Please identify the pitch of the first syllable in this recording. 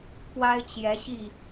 high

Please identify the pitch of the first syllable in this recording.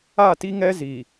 falling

